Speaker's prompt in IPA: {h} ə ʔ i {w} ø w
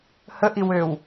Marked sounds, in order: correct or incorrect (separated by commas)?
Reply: correct, correct